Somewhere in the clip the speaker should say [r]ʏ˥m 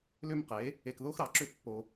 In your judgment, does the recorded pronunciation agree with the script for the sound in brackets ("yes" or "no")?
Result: no